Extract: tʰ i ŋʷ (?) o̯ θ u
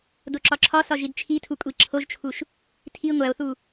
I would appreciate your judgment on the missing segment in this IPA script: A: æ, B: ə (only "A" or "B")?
A